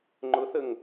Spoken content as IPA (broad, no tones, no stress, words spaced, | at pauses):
ŋ͡ǃʊθəŋ